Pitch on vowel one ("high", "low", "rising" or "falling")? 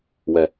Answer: low